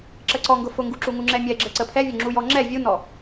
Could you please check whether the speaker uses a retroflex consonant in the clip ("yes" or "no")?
no